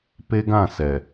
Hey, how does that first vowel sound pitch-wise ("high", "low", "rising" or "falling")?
high